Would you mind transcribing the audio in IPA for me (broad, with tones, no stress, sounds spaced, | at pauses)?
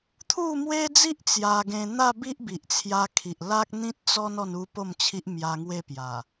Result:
t̪ʰ u˥˧ m w e˦ d͡z i˦ ʔ t͡s j a˧ ɡ ẽ˧ n̪ a˥˧ b i˦ ʔ b i˨ ʔ t͡sʰ j a˧ kʰ i˨ ʔ l a˦ k̚ n̪ ĩ˦ t̚ t͡s ɔ˦ n ɔ˥˧ n u˦ p o˥˧ m t͡ɕʰ i˦ ʔ m j a˧ ŋ w e˥˧ p j a˨˩